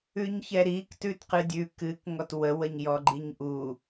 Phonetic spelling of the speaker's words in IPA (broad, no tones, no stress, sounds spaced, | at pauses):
ʉ ɲ ç ɛ ɾ i k t ʉ t q ɨ dʲ ʉ k ɨ k ŋ ɔ t w ə w ə ɲ j ɔ ɡ͡ǃ i ɲ ʔ u